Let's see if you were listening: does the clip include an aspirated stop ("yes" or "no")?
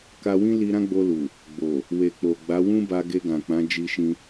no